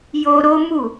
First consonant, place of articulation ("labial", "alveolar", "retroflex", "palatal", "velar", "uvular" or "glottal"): palatal